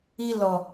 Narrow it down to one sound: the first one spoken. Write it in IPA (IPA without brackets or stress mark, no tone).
i